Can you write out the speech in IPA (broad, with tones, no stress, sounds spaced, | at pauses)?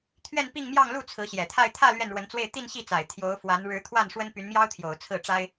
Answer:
t̪ʰ ɥ ɛ˥˧ n p i˥˧ ŋ m j ɑ˥˧ ŋ l u˥˩ t͡sʰ ɹ̩˧˥ ɕ j ɛ˨˩ t̪ʰ a˥˧ ɪ̯ t̪ʰ ä˥˧ l ɥ ɛ˥˩ n ɻ w ə˧˥ n t͡s w e˥˧ ɪ̯ t̪ i˥˧ n ɕ i˥˩ t͡s a˨˩ ɪ̯ t̪ʰ j o˧˥ ʊ̯ f w a˧˥ n ɻ ɻ̩˧˥ t̪ʰ w a˥˩ n ʂ w ə˥ n p y˧˥ n m j ɑ˥ ʊ̯ t̪ʰ j o˨˩ ʊ̯ t͡sʰ ɹ̩˥˩ ʈ͡ʂ a˥ ɪ̯